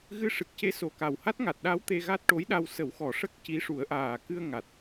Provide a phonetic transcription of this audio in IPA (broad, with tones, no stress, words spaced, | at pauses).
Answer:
ɣɨ˧ʂɨ˨˩k̚ce˧˥ so˨˩ka˨˩w ha˦˥t̚ŋa˨˩t̚ɗa˧˥w t̪e˧ɣa˦˥t̚ʈo˧˥jɗa˧w sə˨˩˦wxɔ˨˩˨ʂə˦˥k̚ ci˧˥ ʂu˨˩˦ə̯ʔaː˨˩ kɨ˧ə̯ ŋa˨˩t̚